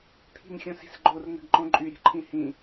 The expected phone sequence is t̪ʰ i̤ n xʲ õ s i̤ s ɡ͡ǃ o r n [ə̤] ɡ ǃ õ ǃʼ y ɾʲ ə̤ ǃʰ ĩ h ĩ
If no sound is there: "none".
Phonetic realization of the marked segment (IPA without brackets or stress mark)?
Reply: ə̤